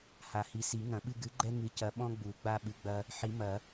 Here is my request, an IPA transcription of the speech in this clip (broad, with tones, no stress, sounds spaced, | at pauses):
h a˨ h i˨ s i˨˩˦ ŋ ɐ̃˨˩˦ ɓ ɨ˦ ɡ ɨ˨˥ ɡ͡ǃ ɛ˦ ŋ ɨ˨˥ c ɐ˨˥ ɓ ɔ̃˦ ɡ͡b u˨˩˦ ɡ͡b a˦ ɓ ɨ˨˥ ɡ͡b ɐ˦ | ħ i˨˩˦ m ɐ˨˩˦